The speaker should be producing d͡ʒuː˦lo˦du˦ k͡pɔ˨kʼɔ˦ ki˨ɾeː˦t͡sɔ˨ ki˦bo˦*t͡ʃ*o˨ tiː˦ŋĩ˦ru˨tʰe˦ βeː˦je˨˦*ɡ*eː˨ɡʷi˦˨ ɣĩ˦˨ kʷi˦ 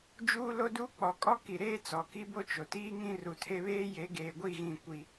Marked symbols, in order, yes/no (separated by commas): yes, yes